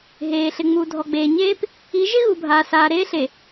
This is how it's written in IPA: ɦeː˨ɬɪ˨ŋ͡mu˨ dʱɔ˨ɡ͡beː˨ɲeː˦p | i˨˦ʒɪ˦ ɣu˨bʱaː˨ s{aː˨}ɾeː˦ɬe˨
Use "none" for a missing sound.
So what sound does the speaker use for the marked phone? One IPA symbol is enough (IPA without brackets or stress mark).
aː˨